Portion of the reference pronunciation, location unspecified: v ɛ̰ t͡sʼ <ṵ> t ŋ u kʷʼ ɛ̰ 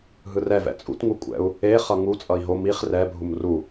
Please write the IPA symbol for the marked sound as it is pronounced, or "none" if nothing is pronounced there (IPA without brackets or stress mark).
ṵ